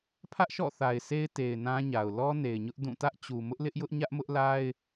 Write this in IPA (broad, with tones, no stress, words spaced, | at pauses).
pʰä˦ʔʃɔ̰˦˨ θa˨ɪ̯se˦ɪ̯ te˨ɪ̯nã˦ɲa˨ʊ̯ lɔ˦ne˨ɪ̯ɲʊ˦ʔ dũ˦˨ tä˦ʔt͡ɕu˨ mʊ˦ʔlɪ˦ʔjʊ˦ʔ ɲä˦ʔmʊ˦ʔla˦ɪ̯